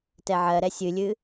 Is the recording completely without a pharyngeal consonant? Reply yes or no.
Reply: no